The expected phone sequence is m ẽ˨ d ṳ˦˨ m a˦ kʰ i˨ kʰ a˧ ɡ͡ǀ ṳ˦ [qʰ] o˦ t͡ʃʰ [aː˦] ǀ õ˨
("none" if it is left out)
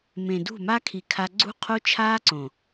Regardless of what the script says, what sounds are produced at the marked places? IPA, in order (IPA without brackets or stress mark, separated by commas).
qʰ, aː˦